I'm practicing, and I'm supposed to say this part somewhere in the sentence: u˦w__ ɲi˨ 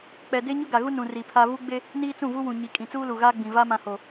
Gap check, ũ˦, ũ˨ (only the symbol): ũ˨